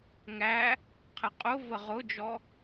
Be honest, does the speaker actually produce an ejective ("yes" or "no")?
yes